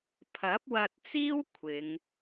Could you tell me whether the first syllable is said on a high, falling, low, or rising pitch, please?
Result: rising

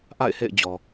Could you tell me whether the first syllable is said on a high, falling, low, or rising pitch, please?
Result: falling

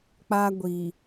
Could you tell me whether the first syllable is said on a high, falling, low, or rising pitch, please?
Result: high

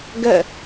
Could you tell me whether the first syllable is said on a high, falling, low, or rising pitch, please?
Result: falling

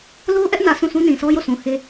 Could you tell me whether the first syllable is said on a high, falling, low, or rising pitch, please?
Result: high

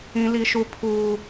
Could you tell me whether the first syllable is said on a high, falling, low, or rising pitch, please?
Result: high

